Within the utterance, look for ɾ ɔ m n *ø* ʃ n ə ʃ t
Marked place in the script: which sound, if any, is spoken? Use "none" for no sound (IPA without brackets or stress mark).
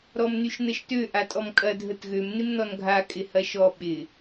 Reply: y